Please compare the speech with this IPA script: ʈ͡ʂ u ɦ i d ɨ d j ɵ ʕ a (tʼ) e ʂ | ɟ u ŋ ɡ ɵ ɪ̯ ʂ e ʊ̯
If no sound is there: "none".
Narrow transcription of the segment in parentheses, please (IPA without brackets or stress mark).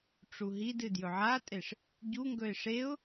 tʼ